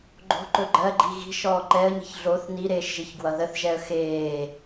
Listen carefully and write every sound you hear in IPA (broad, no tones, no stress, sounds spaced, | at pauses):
ɡ͡ǃ o̤ ǃ ɵ ɡ͡ǃ ɜ ɡ͡ǃ i ɣ i̤ ʃ ɔː ǃ ɛ ə̯ ɲ i̤ ç ɮ o θ n i ɾ eː ʃ ʒ i ç ɡ w ʌ ð ə θ ʒ ɛ ə̯ x eː